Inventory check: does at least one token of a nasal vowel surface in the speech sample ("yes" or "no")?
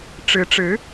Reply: no